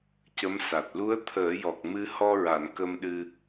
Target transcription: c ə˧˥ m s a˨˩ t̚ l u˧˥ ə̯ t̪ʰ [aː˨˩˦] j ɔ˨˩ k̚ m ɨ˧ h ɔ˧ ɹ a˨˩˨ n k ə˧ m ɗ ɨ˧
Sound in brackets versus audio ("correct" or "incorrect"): incorrect